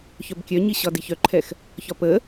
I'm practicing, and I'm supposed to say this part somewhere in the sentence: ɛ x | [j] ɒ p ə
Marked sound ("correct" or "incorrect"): incorrect